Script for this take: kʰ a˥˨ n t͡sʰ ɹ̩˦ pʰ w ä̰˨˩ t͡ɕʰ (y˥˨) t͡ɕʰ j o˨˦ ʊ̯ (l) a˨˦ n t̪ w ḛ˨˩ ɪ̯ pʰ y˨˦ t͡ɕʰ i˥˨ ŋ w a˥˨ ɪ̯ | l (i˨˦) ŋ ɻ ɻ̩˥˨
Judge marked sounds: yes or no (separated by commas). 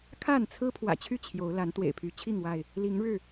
yes, yes, yes